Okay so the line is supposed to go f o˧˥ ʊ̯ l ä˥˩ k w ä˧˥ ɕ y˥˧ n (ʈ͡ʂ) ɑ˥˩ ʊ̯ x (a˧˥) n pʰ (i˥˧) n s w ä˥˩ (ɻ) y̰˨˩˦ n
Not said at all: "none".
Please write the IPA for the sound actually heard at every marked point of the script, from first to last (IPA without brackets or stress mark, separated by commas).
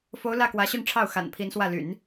ʈ͡ʂʰ, a̰˨˩, i˧˥, l